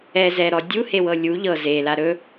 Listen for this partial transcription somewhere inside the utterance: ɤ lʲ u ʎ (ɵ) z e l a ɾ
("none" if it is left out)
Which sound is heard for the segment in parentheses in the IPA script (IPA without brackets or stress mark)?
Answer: ɤ